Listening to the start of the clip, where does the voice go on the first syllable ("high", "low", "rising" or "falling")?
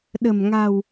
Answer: low